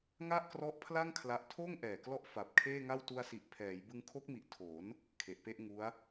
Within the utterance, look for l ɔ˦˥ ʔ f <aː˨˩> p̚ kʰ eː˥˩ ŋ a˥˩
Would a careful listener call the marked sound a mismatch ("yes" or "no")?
yes